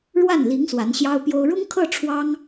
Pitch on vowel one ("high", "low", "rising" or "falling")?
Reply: falling